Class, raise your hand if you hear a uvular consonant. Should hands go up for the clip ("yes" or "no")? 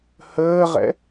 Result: yes